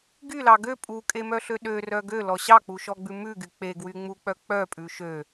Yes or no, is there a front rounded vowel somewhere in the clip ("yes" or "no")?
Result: yes